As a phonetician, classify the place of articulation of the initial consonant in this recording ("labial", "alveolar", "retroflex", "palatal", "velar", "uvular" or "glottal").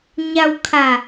palatal